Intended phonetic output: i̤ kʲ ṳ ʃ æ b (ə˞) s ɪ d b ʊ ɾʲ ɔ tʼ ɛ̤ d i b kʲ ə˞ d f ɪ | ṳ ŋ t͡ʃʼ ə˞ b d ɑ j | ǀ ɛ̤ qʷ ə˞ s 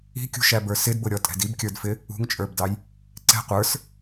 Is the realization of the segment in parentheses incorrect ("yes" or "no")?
no